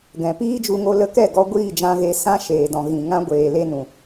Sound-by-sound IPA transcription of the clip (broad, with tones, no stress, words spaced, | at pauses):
ɡɛ̃˨ piː˦d͡ʒu˧ŋo˧ lə˧kɛ˦˨ɡɔ˧ ɡʷiː˦˨d͡ʒã˧ɣe˧ sã˦ʃeː˨dɔ̃˨ ɣĩ˨ ŋã˦ ɡʷeː˨le˧nũ˨